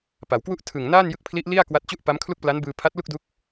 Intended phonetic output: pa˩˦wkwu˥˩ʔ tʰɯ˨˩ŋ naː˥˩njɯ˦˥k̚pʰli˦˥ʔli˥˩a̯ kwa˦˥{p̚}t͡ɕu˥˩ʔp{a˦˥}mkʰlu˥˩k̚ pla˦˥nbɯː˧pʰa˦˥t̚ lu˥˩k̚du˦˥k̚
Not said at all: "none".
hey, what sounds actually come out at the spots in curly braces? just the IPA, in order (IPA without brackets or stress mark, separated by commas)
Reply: t̚, a˦˥